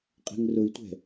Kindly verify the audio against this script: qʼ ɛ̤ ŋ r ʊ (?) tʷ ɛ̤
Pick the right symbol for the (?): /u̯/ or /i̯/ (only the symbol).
i̯